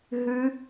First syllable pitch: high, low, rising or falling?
high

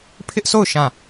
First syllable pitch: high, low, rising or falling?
high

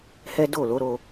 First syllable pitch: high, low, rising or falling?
high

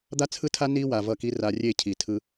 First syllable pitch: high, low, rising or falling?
high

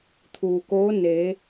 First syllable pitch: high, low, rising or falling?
low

